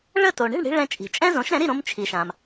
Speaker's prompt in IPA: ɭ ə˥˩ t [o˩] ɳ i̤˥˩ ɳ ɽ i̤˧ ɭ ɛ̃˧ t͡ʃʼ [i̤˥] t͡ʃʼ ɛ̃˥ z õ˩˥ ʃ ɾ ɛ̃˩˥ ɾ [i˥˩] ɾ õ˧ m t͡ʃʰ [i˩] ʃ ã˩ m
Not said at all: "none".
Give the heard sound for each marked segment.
o˩, i̤˩, i˥˩, i˩

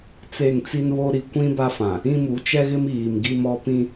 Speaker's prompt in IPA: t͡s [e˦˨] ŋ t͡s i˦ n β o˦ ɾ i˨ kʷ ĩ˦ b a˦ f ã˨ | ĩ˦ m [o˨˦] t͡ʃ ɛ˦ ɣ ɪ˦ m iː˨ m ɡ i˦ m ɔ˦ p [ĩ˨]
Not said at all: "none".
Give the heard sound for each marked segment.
e˦˨, u˨˦, ĩ˦

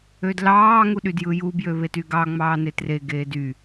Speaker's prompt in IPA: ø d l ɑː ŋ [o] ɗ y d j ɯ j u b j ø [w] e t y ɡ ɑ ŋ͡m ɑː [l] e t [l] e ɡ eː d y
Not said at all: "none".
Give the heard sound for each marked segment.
u, β, n, r

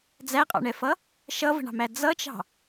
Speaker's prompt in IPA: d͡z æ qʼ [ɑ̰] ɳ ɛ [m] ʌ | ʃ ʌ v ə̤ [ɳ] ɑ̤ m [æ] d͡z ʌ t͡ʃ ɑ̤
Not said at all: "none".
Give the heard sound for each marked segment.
ɑ̰, f, ɳ, æ

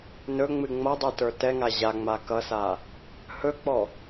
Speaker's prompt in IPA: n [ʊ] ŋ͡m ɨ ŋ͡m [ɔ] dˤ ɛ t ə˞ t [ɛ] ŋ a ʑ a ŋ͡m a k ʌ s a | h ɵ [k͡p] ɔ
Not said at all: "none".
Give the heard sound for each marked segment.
ɵ, ʌ, ɛ, k͡p

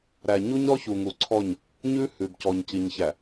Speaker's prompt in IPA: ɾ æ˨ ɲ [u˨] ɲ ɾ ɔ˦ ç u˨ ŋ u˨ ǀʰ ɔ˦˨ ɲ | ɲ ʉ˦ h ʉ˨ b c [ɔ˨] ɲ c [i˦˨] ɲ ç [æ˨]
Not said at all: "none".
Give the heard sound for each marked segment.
u˦, ɔ˨, i˨, æ˨

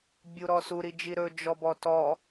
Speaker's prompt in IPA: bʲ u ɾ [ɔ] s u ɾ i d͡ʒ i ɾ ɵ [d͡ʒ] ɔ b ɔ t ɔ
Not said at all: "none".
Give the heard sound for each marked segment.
ɔ, d͡ʒ

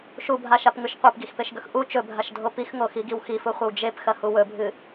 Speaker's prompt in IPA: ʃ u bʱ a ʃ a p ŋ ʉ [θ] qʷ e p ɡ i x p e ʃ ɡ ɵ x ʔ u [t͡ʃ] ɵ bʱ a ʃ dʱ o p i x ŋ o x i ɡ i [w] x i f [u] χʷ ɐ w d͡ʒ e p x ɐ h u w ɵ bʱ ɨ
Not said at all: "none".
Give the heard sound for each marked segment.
ʃ, t͡ʃ, w, u

